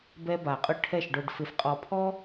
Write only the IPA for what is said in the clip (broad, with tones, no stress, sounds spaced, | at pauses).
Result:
b ɛ˧ b a˨ qʼ ʊ˦ ʈʰ ɛ˦˨ ʃ ɖ o˨ ɖ f ɪ˨ f qʼ ɔ˨ pʰ ɔ˦